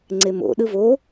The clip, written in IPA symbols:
ŋ͡ǀemo̰ ɗɯvo

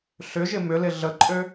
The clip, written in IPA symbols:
ɬʏʒɪ mʏlɪ ɮəǃʼø

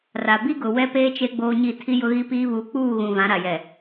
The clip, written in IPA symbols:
ra˨ bi˦ɡʊ˨ wɛ˦peː˦ t͡ʃe˦ɡ͡boː˦ɲi˦˨ tʰi˦jʊ˦ɣi˦piː˦ βu˨˦k͡puː˦˨ɣũ˨ vã˨˦ɾa˨jɛ˨

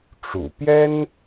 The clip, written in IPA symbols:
ʈ͡ʂṵ˨˩ pjɛ˥n

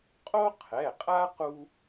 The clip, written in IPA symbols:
qʼo˥ qʰɛ˩˧˩qʼa˥ qu˧

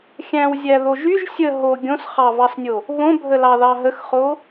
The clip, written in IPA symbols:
xʲæ̃wzʲæðoʒ yʒ sʲə ɦo ɡʲõsχɑvɑsnʲo | βõbʱəlɑðɑ ɦəxχo

